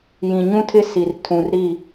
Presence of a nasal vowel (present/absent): present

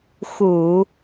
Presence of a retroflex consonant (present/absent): absent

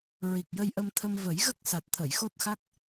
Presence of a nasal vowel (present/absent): absent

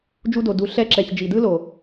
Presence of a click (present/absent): present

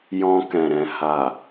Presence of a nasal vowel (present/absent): present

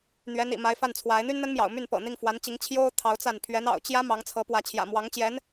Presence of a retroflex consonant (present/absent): absent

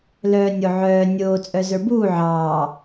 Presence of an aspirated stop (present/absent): absent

